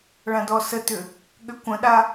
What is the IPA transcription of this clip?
ɭ ã d ɔ s ə t ʏ | ɠ ʏ kʷ ə̃ ɗ a

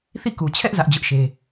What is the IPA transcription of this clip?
θ i˦˨ k u˨ t͡ɕʰ ɛ˦ ʔ z ä˦ ʔ d͡ʑ ʊ˦ ʔ ʃ e˦

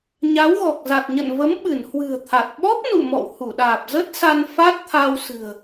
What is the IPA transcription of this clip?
ɲ a˨˦ w ɣ ɔ˨˩ k̚ z a˨˩ t̚ ɲ ə̰˧˨ n v ə˨˦ m ɓ ɨ˧˩ n h w ɨ̤˨˩ ə̯ t̪ʰ a˨˩ t̚ ɓ ɔ˦˥ p̚ n ṵ˧˨ m ɔ̰˧˨ w h u˧˩ ɗ aː˨˩ p̚ z ə˦˥ t̚ s a˧ n f a˦˥ t̚ t̪ʰ a˧ w s ɨ̤˨˩ ə̯

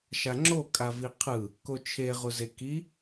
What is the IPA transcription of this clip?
ʃ a ŋ͡ǁ o kʼ a v i qʰ ɯ | k o t͡ʃʰ e ʁ u z e k i

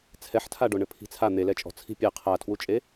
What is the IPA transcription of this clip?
t͡sʰ ɛ ħ tʰ a ɖ o ɳ ɘ pʰ i̤ t͡sʰ a n̪ e l ɛ t͡ʃʼ ɔ̤ t͡sʰ i̤ pʲ ɛ qʰ a tʰ w u t͡ʃʼ e

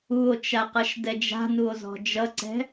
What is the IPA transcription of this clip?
u o̯ t͡ʃ a q ʌ ʃ d ɛ d͡ʒ a̤ n u o̯ z ɔ̤ d͡ʒ ʌ ǀ ɛ̤

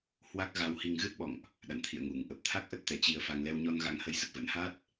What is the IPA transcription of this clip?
h w a˦˥ k̚ ɣ a˧ w h i˧ ŋ ɣ ɨ˦˥ t̚ ɓ ɔ̰˧˨ ŋ ʔ | ɗ a̰˧˨ n t̪ʰ ḭ˧˨ ə̯ ŋ u˧˩ ŋ ʔ ə˨˩ p̚ t̪ʰ a˦˥ k̚ ʔ ə˦˥ t̚ t̪ ɛ˨˩ t͡ɕ i˧ ə̯ f a˧ ŋ l ɛ˧ w ɲ ɔ˧ n ɣ a̰˧˥ ŋ h ə˧ j s ə˨˩ t̚ v ə̰˧˥ n h a˦˥ t̚

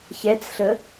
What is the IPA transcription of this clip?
ç ɛ t͡s ɬ ə

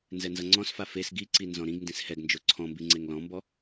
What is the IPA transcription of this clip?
n z ɛ n z ʌ ŋ͡ǀ ɔ̃ s f a f e s ɡ i ǀ i n z ɔ̃ ɾ ĩ ɡ n d ĩ s h ɛ ɡ n d͡ʒ o ǀʰ ɔ̃ m b i ŋ͡ǀ e ŋ l ɔ̃ m b ɔ

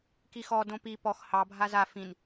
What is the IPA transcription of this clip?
k i x ɔ d õ p i p ɔ x h ɑ bʱ a z a f ĩ n

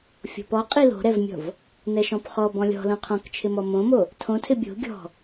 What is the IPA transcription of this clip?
fʲ o̤ p ɔ qʼ i l o̤ ɾ ɛ v mʲ ɔ̤ v | n ɛ ʃ ɔ̃ p χ ɔ b ɔ̃ lʲ ɔ̤ l õ qʰ ɔ̃ k t͡ʃʰ ɪ m ɔ m õ m o | tʰ õ tʰ ɪ bʲ o̤ ɡʲ ɔ̤

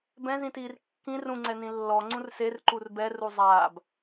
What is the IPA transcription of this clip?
b ɛ̃ z ĩ t iː r kː ĩ r ũ ŋ͡ǀ ɛ n ĩ lː ɔ ŋ͡ǀ ũ r s e r ǃ u r b ɛ r u zˤ aː b

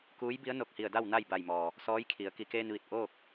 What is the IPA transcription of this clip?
k uː˧˥ j b i˧˥ ə̯ n o˧˩ k̚ h i˧˩ ə̯ d a˥˨ w n a˥˨ j b a˧˩ j m ɔː˩ | s ɔː˧˥ j kʰ i˩˧ ə̯ k i˩ k eː˧ n ʋ i˧˩ t̚ ʔ oː˥˨ k̚

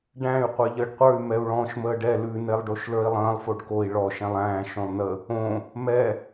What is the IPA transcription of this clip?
ɖ æ̃ y̯ qʷ e ʎ əː ɖ qʷ ə˞ y̯ m ɛ u̯ ɭ ɔ̃ː ʃ m əː ɖ ɛ l ʉ n e lˠ ɖ o ʃ l ə˞ i̯ lˠ ə̃ː lˠ f o ɖ k o i̯ ɭ ɔ ʃ ɛ̃ lˠ æ̃ː ʃ õ lˠ n ə | õ | m ɛ

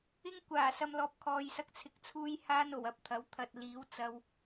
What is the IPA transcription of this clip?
ɪ˥ ŋ kʷ aː˨˩ s ɐ˧ m l ɔː˨ p̚ kʰ ɔː˨ j s ɐ˧ k̚ t͡sʰ ɪ˧ k̚ t͡sʰ uː˥ j h aː˥ n o˨˩ w ɐ˨ p̚ t̪ʰ ɐ˨˥ w t̪ʰ ɐ˧ t̚ l iː˨˥ w t͡s ɐ˥ w

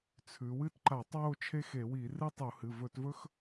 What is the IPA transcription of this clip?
t͡sʰ ʉ˩˧ w ɨ˥ t ǃ a˧˩˧ tˤ w o˥˧ t͡ʃʰ e˥ x e˧˩˧ w i˧˩˧ r ɨ˥ tˤ u˧˩˧ h ɨ˩˧˩ v ɵ˧˩˧ t v ɵ˥ x

